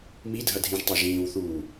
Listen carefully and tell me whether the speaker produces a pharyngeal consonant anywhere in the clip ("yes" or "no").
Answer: no